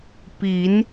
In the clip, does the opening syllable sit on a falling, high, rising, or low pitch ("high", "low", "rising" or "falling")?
rising